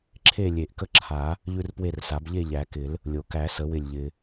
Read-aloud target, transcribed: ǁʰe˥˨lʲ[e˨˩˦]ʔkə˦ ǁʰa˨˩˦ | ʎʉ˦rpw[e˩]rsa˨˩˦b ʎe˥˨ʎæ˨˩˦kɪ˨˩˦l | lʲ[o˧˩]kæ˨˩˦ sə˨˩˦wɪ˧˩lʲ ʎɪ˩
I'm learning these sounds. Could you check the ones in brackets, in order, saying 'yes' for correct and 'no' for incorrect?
yes, no, no

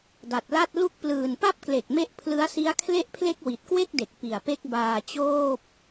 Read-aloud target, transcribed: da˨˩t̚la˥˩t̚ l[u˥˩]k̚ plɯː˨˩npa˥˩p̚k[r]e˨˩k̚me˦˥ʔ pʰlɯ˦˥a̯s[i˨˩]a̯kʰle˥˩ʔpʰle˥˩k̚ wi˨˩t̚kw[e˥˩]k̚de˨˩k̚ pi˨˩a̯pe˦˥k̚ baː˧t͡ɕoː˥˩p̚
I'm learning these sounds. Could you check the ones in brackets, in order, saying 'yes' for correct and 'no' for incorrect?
yes, no, no, yes

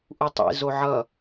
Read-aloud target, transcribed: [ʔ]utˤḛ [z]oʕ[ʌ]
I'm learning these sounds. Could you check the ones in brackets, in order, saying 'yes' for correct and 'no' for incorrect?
yes, yes, yes

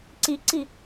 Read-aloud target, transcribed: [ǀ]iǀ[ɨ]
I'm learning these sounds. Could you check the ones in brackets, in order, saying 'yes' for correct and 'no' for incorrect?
yes, no

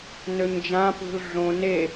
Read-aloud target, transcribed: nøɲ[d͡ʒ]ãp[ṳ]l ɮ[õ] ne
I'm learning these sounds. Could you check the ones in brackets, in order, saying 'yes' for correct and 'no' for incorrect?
yes, yes, yes

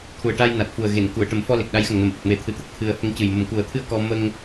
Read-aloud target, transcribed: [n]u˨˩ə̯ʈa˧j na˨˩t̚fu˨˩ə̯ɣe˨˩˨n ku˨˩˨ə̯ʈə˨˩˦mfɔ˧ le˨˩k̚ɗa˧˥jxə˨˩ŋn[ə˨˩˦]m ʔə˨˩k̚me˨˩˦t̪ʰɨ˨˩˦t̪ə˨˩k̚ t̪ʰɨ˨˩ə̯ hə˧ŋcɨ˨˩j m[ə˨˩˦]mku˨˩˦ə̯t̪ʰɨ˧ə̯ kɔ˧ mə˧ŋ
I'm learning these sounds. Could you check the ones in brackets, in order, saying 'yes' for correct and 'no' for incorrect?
no, yes, no

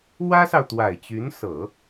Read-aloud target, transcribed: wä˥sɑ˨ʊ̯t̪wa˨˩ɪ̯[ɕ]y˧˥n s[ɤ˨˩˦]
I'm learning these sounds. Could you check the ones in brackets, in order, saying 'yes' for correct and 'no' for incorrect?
no, yes

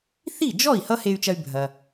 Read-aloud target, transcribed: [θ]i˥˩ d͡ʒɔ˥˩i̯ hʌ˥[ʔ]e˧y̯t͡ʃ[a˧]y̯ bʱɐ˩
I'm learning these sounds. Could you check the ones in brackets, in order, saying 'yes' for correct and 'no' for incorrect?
yes, no, no

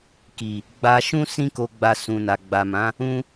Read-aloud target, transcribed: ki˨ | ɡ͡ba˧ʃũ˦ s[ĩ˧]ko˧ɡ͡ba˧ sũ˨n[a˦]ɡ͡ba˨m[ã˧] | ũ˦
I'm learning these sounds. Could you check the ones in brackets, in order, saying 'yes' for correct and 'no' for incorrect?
no, no, no

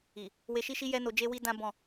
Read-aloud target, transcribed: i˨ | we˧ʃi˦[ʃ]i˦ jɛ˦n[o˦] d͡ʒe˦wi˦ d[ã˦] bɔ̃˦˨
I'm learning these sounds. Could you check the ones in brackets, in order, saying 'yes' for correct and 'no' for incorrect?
yes, no, yes

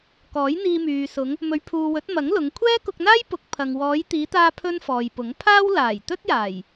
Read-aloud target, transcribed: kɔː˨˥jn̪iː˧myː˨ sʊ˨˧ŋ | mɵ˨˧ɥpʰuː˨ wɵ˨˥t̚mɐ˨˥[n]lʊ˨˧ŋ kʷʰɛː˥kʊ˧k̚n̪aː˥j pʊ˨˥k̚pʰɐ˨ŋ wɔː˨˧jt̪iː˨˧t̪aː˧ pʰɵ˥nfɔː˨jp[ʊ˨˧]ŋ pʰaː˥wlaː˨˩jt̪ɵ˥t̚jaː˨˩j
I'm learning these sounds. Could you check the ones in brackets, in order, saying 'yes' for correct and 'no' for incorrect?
no, no

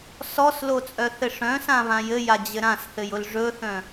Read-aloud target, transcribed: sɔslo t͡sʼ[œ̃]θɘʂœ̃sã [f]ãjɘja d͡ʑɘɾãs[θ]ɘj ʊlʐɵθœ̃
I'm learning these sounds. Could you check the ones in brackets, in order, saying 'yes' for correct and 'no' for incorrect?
no, no, yes

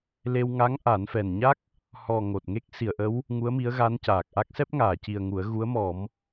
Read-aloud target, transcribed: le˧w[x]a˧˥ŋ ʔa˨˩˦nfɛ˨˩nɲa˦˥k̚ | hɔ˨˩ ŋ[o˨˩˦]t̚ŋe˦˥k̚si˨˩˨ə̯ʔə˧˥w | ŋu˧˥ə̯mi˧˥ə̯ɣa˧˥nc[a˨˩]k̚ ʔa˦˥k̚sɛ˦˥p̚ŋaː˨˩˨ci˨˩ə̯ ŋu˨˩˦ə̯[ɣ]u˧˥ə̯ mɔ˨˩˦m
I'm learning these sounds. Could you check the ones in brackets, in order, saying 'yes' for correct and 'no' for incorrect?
no, no, no, yes

